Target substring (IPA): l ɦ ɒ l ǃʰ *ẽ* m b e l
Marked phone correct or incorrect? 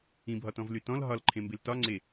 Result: correct